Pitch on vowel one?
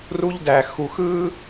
high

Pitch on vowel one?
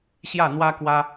falling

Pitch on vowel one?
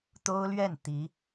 high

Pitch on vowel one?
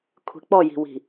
low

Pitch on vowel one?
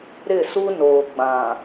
falling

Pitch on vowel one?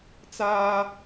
high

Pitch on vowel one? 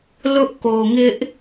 high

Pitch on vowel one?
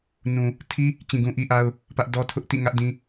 low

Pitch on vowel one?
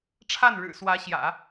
falling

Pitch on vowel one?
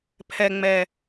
low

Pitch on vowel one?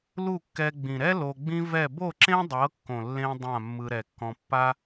falling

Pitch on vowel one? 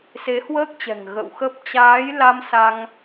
rising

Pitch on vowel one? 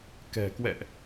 low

